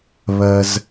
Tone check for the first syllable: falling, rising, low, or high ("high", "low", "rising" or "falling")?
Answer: low